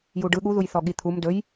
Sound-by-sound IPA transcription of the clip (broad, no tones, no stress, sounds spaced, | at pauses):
j u ɖ ɯ ɠ u ð u j θ ɔ ɠ i t̪ʰ u m d ɵ j